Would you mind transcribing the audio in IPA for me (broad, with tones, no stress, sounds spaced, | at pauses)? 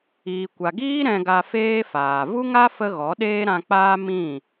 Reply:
iː˨ kʷ a˨ ɡ iː˦ ɾ ɛ̃˧ ɡ a˧ f eː˦ f aː˨ v u˦ ŋ a˦ f ə˦ ɣ ɔ˨˦ ɗ eː˦ ɾ ã˧ k͡p aː˦ m ĩ˦˨